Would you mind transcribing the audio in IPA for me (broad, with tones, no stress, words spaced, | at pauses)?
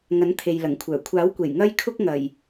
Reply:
ŋɐ˨˥nt̪ʰe˨jlɐ˨˩ŋkʷʰœː˨˩ kʷʰaː˨˥wkʷe˨˩j ŋɐ˥j kʰʊ˥k̚ŋɐ˨˩j